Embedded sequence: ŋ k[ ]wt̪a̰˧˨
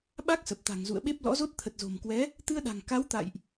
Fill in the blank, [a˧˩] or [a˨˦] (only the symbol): a˨˦